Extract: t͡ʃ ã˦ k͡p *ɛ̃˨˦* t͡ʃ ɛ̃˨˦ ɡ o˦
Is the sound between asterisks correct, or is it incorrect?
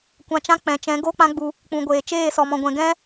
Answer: incorrect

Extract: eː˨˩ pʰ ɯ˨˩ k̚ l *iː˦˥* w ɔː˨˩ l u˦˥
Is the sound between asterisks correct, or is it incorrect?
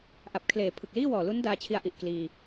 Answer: incorrect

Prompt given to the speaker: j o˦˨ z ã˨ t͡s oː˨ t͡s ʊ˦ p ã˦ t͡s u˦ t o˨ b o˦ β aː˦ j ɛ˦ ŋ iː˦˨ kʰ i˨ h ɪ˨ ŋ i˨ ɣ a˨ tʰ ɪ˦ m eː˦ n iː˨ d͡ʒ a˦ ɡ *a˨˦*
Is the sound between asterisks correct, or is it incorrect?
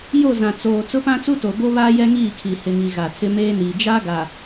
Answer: incorrect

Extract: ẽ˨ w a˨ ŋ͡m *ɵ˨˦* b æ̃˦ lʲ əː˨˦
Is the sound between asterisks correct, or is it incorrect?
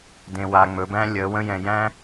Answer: correct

